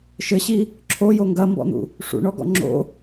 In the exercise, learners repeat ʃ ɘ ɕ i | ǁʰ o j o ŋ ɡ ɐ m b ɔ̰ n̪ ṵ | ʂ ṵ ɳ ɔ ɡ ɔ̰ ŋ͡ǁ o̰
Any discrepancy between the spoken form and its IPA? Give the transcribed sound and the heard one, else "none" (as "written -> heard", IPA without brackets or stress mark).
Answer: none